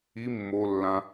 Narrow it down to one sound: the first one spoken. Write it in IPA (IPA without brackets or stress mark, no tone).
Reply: i